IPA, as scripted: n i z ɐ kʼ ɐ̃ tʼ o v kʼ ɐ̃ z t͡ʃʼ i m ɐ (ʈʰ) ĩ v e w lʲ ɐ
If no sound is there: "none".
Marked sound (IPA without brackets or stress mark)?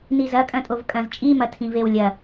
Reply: tʰ